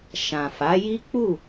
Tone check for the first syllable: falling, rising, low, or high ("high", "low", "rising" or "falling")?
low